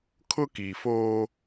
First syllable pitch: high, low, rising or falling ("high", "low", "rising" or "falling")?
high